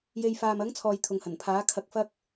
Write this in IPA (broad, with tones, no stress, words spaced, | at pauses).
je˧j faː˨mɐ˨˥ŋt͡sʰɔː˨j t̪ʰʊ˨ŋhɐ˨˩npʰaː˨˥ kʰɐ˧k̚fɐ˥k̚